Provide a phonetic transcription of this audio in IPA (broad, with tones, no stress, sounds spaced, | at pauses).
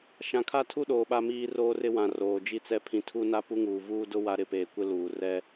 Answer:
ʃ ã˨ kʰ a˦ tʰ u˦ ɗ oː˨ ɓ a˦ m iː˦ r oː˦ r ɪ˦ w ã˨ r oː˨ d͡ʒ i˦ t͡s ɛ˦ pʰ ĩ˨ tʰ u˦ n a˦ p u˦ ŋ uː˨ v uː˦ d ʊ˦ w a˦ ɾ ɪ˦˨ p eː˨ kʷ ɪ˦ l uː˨ r ɛ˦